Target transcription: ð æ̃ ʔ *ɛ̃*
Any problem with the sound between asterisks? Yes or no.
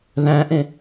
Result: yes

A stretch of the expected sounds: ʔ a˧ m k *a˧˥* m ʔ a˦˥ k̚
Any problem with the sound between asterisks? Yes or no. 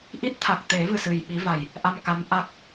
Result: no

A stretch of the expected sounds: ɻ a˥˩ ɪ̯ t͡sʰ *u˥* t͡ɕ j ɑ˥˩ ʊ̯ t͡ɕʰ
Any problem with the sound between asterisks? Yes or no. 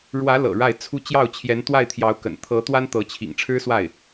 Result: no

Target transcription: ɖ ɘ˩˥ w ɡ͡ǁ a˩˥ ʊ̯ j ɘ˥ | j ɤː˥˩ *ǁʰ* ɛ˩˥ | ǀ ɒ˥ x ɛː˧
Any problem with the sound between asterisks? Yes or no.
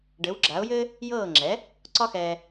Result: yes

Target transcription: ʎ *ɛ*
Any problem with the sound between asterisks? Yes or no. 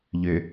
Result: yes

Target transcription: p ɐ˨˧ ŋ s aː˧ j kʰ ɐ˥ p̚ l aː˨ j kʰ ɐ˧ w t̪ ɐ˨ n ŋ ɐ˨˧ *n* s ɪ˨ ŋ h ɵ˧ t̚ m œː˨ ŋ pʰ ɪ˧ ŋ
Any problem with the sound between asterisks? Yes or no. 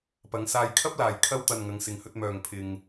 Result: yes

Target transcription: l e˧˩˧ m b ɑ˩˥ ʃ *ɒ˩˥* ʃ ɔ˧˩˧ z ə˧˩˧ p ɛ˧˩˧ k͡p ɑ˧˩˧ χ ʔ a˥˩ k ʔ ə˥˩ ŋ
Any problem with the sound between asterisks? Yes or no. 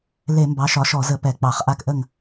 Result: no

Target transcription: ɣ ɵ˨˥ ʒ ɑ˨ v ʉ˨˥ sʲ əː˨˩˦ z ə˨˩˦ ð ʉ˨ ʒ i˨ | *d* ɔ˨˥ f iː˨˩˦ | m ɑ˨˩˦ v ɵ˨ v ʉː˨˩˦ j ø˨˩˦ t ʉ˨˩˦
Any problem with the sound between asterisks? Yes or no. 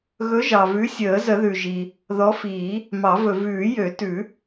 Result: yes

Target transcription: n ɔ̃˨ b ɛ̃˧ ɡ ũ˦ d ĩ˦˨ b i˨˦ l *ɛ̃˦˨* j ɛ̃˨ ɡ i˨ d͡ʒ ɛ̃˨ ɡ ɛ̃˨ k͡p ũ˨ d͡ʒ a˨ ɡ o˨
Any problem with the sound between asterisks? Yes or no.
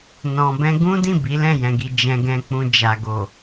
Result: no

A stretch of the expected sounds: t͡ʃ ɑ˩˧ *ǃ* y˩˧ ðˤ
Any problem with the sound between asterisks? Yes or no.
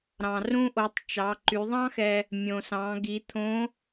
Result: no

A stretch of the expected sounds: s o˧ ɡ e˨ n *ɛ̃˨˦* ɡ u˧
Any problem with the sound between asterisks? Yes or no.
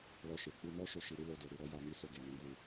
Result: no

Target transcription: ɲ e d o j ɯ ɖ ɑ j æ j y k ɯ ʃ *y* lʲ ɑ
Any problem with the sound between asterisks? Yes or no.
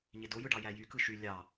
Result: no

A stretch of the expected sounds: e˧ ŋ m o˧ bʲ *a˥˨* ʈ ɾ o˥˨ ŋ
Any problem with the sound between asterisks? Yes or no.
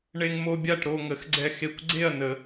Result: no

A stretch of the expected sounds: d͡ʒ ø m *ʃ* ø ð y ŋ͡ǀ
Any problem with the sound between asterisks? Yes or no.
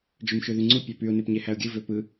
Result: no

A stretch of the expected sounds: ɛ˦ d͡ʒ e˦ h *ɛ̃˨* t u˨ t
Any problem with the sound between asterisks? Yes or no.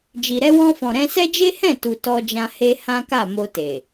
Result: yes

